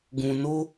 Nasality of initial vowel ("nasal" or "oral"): nasal